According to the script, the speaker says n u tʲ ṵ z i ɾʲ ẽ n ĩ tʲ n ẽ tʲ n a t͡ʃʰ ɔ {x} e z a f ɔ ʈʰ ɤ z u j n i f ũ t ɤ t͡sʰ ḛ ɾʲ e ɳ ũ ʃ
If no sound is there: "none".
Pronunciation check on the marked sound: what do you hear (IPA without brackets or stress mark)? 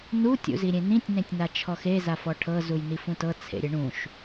x